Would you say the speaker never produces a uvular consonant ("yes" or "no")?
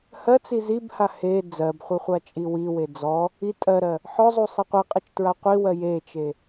no